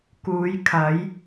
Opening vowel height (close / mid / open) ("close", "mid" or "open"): close